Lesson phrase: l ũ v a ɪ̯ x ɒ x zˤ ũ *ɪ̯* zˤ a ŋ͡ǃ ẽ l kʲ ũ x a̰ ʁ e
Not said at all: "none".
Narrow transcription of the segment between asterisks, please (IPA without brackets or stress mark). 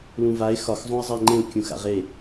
ɪ̯